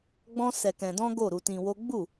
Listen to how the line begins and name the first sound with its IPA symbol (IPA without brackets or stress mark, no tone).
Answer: ɡ͡b